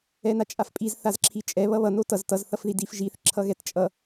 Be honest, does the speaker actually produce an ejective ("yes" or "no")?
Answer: yes